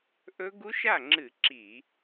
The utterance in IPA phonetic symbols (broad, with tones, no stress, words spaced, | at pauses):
ʔɵ˦˥ ɡu˦˥ʃa˥˩ŋ͡ǁɨ˧˩˧ ǁi˧˩˧